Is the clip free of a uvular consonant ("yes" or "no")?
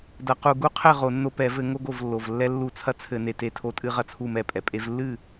no